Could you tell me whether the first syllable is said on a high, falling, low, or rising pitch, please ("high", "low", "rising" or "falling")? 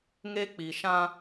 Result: high